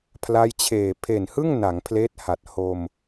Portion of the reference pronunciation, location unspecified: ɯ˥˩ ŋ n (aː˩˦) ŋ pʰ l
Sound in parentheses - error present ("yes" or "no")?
yes